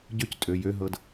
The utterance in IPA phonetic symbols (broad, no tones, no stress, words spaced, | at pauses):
ɟøctʼø jøɦɤd